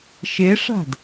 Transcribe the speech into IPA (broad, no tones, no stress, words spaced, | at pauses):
ʃeʂa̤d